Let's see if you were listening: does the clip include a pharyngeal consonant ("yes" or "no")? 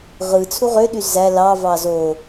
no